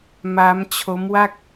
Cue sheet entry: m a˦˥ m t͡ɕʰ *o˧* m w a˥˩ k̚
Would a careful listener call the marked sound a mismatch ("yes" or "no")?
yes